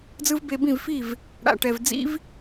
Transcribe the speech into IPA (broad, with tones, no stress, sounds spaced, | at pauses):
d͡z ɯ˦ v b e˧ b ĩ˦˨ v f i˦˨ v | ɽ a̰˨ ʈ ɛ˨ v d͡z ḭ˦ v